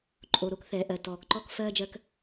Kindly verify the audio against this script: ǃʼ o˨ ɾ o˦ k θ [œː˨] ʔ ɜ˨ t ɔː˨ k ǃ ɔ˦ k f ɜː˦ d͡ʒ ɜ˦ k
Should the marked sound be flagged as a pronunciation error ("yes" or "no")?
yes